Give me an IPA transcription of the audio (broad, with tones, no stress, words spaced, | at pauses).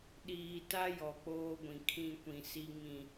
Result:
ɗiː˨ta˦ jɔ˨k͡poː˦ɡʷĩ˨ kʰĩ˦˨kʷĩ˨ si˨ ŋĩ˨